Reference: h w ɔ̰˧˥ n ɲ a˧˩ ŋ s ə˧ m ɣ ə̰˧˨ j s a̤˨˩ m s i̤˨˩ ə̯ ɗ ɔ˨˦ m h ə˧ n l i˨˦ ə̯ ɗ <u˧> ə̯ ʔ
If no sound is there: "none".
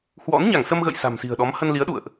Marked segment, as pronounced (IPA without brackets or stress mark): ṵ˧˨